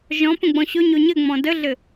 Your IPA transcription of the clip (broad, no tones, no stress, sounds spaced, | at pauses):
ʒ ɔ̃ p ə̃ ɡ͡b ɔ̃ ɕ ɵ ɲ ɵ ɲ ɘ ŋ͡m ɔ̃ d ə ɮ ɘ